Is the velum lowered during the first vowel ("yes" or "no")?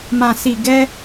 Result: yes